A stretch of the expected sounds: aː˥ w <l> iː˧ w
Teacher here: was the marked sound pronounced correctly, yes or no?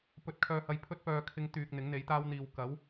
no